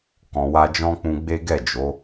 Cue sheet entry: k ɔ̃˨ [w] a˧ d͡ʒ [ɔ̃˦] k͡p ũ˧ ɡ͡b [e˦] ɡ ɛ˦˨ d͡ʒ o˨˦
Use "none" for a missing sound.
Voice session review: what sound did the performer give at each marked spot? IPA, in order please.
w, ɔ̃˦, e˦

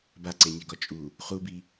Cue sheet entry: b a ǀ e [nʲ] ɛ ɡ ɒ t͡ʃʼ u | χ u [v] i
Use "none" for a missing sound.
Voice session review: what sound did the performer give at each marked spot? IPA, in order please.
nʲ, b

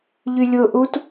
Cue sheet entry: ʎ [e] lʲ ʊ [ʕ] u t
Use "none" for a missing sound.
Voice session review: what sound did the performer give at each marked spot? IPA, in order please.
y, ʔ

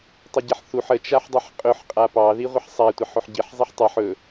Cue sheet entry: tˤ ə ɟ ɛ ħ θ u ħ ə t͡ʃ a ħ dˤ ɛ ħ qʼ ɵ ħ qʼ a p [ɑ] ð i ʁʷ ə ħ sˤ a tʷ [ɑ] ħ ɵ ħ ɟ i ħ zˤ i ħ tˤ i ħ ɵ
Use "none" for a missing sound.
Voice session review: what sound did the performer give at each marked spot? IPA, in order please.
ɑ, ɑ

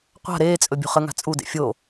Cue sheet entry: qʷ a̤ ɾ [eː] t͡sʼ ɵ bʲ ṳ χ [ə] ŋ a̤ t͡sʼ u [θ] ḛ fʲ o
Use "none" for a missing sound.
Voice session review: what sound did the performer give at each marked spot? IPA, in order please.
eː, ə, d

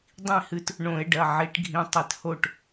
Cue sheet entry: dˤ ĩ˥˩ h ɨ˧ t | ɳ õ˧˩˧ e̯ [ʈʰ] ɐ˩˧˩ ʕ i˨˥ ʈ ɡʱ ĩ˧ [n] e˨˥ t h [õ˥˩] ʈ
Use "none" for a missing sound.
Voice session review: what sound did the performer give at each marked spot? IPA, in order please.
ɖ, tˤ, o˥˩

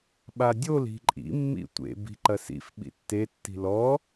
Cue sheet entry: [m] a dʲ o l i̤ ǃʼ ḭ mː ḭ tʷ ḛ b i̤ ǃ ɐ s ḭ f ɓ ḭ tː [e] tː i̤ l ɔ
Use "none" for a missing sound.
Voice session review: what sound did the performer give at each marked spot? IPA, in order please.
ɓ, e

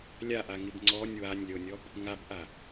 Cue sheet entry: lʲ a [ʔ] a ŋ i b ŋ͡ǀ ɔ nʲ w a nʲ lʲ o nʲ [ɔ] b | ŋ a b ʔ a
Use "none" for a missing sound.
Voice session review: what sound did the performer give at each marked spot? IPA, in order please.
ʔ, ɔ

